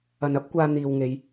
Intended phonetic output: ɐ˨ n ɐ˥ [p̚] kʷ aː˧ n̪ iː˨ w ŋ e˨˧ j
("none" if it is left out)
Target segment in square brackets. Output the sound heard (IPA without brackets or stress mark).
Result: p̚